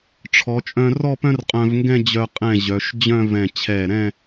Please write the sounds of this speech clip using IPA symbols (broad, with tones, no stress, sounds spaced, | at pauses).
ʈ͡ʂʰ ɔ˩˧ t͡ʃʼ œ̃˧ r ɔ˥˧ p œ̃˥ r qʼ œ̃˧ v ŋ ɡ ɛ̃˥˧ d͡ʑ œ˧ qʼ ɛ̃˧˩ ʑ œ˩˧ ʃ d͡ʑ œ̃˥˧ v ɛ̃˧˩ t͡ɕʰ ɛ˧˩ ɾ ɛ̃˥˧